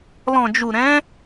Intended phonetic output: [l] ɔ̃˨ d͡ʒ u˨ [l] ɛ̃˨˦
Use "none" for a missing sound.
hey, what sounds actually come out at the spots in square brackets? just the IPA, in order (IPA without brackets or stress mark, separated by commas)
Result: l, ɾ